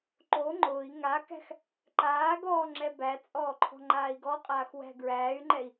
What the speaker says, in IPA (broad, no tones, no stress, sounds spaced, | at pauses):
ǃ o ŋ͡ǃ ʊː i̯ ŋ a k æ̤ x | ǃ aː ɡ ɔː ŋ͡ǁ ɛ b æ t͡sʼ ɔː ǃʰ ɔ̤ ŋ͡ǃ aː i̯ ɡ ɔ qʼ aː x w æ̤ ɡ ɹ æː y̯ ŋ͡ǃ ɛ i̯